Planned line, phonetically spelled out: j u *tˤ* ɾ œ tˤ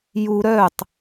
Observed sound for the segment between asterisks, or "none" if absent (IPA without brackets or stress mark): none